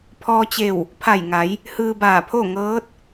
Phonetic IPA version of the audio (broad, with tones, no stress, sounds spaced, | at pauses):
pʰ ɔː˧ t͡ɕ e˧˩ w | pʰ a˧˩ j ŋ a˩˧ j | h ɯː˧ b aː˧˩ pʰ o˥˨ ŋ ɤː˧˥ t̚